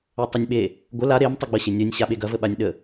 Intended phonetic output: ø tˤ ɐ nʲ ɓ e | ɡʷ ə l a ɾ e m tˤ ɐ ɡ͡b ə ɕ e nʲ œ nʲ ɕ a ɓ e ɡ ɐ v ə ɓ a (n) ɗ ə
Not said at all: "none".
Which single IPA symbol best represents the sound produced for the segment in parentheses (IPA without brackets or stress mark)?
nʲ